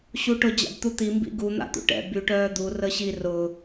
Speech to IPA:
ɕ u ʈ ʊ d͡ʑ a̰ b t̪ u t̪ i m b ḭ ɡ u n̪ a̰ t̪ ṵ ʈ ɛ̰ b y ʈ œː d̪ u r ə ɕ i r ʊ

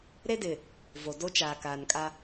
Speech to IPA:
ɾ e˦ d ɪ˨ | v o˨ d o˦ t͡ʃ aː˨ k aː˨ n kʼ a˦

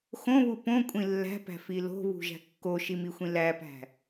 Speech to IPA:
x õ β u p õ kʷʼ ĩ lː æ̤ p æ̤ f i l o̤ β ṳ ʒ æ̤ kː o ʃ i m i xʷ ĩ l æ p æ̤

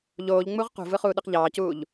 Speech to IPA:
ʎ oː ʎ ŋ͡m u ʁ q ṳ v ɯ χ uː ɗ ɯ q ʎ ɑː c uː ʎ

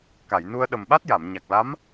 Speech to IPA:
k a˨˩˨ j n u˧ ə̯ ɗ ə˨˩ m ɓ a˦˥ t̚ j a˨˩˨ m ɲ a˨˩ k̚ l a˧˥ m

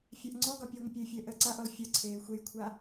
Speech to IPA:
fʲ a ʔ ŋ͡ǀ ɔ ɡ ɒ pʲ əː ŋʷ ə pʲ ə ɪ̯ fʲ əː ʔ əː ǀ a ʔ ɔ l fʲ ɒ ǀʰ eː xʷ e j kʷʰ a

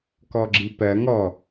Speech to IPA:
k ɔ ɡ͡ǁ i p ɜ ŋ ɔ

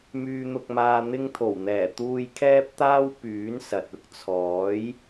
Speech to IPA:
m yː˧ n̪ ʊ˧ k̚ m aː˧ n̪ ɪ˧ ŋ t̪ʰ o˨˩ w n̪ ɛː˨˩ t̪ uː˧ j kʰ ɛː˥ p̚ t̪ aː˥ w p yː˨˥ n s ɐ˨ t̚ ʊ˥ k̚ t͡sʰ ɔː˨˥ j

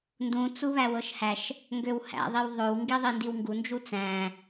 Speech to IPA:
n d ũ t͡s u β æ w ɤ ʃ h æ ʃ | ŋ ɡ ø w h æ̰ ðˤ i w ðˤ ø w ŋ ɡ i ðˤ i n d i w ŋ ɡ u n d͡ʒ u t͡s æ̃

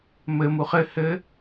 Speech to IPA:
m ɘ m u χ ɘ h ɘ

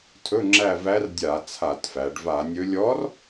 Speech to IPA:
tʰ ɵ˧˥˧ ŋ͡ǁ æ˦˨ v æ˧˥ r dʲ a˧˩˧ t͡sʰ a˧˩˧ t f æ˩˧ ɖ v a˧˩˧ nʲ ɵ˧˥ lʲ ɔ˧˥ r

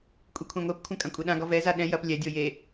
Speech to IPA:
kʷʼ i kʷʰ ɛ̃ ŋʷ e p kʷʰ ɐ̃ kʼ ɐ̃ kʷʼ e ɗ ã ɡ ɔ v ɛ z a ɗ ɛ̃ j ɐ p lʲ ɛ dʲ o j e

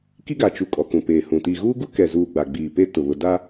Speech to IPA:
k i˦ ɡ a˨ t͡ʃ u˨ kʼ ɔ˨ k ũ˨ p eː˨ h ũ˨ t i˨ ɣ uː˦ ɡ u˦ k ɛ˨ z uː˨ ɡ͡b a˨ ɡ͡b iː˨ p eː˦ t ʊ˨ β ʊ˨ d a˦

